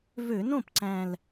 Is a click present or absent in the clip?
present